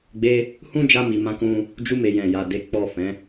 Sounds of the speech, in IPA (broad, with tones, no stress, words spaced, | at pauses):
ɡ͡be˧ | hũ˦d͡ʒa˧mi˨ mã˨˦kũ˧ | d͡ʒu˧me˨ jɛ̃˨ja˨de˨˦ k͡pɔ˦˨fɛ̃˨˦